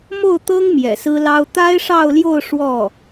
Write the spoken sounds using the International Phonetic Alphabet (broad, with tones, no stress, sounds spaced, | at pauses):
m o˥˩ ʊ̯ t̪ ɤ˥ ŋ m j ɛ̰˨˩ s ɹ̩˥ l ɑ˥ ʊ̯ t̪ a˥ ɪ̯ ʂ ɑ˥˧ ʊ̯ l j o˥˧ ʊ̯ ʂ w ɔ˥˩